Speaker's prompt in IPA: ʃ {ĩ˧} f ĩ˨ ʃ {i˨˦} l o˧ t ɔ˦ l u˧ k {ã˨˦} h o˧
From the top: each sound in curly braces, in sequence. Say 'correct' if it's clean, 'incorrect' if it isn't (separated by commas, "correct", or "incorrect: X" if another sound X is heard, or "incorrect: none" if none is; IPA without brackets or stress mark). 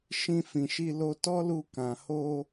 correct, incorrect: i˧, incorrect: ã˨